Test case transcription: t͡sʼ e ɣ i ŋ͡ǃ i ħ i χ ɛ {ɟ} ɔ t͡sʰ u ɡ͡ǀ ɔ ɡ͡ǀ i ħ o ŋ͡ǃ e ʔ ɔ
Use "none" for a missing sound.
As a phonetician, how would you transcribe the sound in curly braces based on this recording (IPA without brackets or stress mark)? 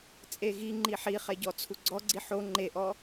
ɟ